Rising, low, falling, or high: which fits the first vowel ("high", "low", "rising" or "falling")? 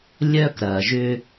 high